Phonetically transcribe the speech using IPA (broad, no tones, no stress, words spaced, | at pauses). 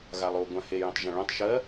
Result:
ɣalˠo ɡʷãhe jõtˤʒãɭõtˤ ʃɜ